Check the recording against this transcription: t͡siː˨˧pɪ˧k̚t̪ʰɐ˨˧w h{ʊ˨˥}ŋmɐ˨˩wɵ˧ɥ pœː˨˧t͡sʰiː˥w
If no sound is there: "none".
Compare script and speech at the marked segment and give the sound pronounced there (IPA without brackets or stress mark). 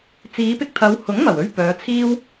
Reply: ʊ˨˥